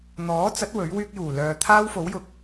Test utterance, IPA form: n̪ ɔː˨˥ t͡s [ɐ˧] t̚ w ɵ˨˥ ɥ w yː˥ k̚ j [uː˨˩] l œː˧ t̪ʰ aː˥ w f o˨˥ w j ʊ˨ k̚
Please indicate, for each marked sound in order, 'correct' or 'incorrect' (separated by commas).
incorrect, correct